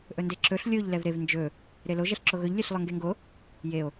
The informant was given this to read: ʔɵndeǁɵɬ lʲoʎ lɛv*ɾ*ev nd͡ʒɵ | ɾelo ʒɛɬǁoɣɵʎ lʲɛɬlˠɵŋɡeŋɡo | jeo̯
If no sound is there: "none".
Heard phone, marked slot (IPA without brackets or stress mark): ɾ